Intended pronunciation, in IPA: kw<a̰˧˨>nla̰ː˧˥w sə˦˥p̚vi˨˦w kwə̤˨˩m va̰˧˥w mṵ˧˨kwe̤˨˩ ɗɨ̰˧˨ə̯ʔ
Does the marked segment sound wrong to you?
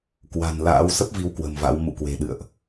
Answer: yes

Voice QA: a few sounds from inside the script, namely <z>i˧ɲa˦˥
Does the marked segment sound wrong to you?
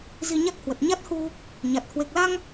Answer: no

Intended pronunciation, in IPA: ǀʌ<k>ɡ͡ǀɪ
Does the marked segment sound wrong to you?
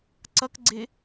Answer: no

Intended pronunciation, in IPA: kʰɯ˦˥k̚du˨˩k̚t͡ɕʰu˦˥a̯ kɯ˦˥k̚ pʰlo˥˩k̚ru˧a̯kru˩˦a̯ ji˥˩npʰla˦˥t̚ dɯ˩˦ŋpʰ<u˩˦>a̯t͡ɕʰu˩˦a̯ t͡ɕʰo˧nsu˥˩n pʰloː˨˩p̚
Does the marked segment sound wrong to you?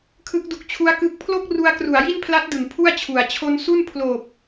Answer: yes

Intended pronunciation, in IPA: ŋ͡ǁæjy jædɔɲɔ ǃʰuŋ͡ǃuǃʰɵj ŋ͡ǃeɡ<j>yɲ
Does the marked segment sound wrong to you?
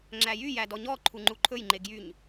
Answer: no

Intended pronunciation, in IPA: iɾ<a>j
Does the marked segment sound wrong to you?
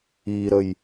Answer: yes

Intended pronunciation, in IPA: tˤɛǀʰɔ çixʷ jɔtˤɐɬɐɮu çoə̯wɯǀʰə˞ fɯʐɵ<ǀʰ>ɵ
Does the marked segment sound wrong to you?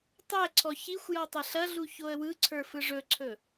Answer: no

